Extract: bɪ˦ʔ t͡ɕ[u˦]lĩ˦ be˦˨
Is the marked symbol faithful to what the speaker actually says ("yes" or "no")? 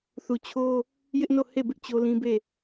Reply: no